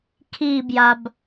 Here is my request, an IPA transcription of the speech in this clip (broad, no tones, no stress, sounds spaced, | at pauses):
kʰ iː b j a b